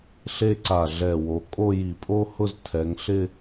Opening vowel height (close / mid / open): mid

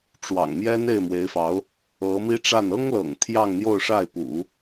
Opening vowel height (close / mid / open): open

